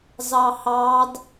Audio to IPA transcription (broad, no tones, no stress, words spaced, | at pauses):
zɑhɑd